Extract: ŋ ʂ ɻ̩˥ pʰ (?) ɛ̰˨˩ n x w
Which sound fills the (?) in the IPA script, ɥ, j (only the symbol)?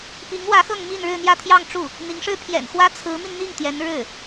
j